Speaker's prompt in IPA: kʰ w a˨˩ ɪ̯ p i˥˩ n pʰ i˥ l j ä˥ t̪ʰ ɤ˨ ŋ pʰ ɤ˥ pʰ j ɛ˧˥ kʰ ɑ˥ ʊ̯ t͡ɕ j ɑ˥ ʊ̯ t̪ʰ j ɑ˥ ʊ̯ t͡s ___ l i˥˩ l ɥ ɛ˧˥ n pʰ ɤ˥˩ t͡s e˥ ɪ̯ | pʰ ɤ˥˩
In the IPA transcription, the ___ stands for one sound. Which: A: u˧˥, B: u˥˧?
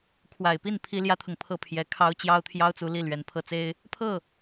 A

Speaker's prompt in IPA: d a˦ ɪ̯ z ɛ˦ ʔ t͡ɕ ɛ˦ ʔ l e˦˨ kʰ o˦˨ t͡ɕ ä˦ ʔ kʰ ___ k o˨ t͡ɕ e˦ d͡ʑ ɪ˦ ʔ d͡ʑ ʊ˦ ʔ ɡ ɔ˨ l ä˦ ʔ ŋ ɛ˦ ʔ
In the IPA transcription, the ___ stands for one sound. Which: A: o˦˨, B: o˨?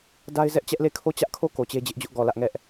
A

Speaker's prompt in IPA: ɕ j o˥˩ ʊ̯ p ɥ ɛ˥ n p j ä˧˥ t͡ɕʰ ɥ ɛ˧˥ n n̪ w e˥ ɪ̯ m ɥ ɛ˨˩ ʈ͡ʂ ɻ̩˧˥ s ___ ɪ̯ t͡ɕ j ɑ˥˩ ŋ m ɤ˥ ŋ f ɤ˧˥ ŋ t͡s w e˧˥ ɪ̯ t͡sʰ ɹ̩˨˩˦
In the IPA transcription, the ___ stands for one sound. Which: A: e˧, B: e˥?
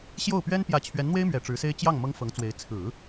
B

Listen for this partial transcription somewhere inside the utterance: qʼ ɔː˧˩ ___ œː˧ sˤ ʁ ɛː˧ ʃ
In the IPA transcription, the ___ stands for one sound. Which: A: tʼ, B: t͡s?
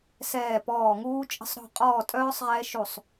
A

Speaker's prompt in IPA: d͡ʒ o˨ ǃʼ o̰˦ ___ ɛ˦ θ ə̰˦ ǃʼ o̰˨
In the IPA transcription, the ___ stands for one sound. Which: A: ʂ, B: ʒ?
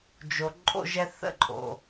B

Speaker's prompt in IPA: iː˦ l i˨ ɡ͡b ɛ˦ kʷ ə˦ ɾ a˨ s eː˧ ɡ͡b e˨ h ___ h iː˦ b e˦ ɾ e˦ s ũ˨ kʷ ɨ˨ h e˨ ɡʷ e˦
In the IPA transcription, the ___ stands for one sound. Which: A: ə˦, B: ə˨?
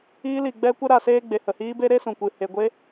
B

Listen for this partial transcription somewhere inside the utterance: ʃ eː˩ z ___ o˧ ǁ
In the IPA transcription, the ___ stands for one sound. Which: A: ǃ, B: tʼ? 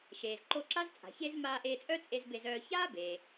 A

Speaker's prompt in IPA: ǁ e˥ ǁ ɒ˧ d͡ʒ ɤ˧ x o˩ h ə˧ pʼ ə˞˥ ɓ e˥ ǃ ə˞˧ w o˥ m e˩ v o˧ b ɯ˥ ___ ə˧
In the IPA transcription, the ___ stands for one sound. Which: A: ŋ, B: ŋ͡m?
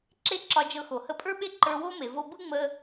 B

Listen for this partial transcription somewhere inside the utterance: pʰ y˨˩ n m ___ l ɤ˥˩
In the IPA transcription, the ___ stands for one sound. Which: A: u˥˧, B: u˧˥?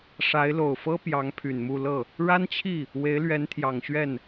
A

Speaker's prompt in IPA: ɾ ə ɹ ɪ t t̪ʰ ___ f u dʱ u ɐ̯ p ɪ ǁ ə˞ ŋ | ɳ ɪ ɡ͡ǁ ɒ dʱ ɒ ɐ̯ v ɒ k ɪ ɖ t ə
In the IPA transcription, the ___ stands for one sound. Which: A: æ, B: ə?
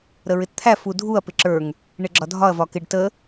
A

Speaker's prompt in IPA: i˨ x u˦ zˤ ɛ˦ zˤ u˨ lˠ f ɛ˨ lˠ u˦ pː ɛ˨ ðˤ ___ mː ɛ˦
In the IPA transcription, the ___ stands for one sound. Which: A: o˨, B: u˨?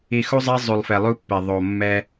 A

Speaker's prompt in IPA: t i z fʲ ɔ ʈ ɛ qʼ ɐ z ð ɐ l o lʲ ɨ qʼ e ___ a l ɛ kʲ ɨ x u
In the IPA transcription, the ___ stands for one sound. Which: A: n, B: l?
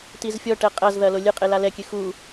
B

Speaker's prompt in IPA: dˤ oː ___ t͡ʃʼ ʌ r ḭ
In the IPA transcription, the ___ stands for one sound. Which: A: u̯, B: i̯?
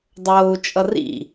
A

